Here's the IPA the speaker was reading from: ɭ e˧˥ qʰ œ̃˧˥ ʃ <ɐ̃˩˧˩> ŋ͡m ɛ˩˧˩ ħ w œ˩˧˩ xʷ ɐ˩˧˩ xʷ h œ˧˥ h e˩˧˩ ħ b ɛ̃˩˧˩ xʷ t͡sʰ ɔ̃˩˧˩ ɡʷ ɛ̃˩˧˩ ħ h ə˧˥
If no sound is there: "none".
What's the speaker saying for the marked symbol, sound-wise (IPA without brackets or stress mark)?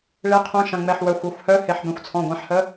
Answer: ɐ̃˩˧˩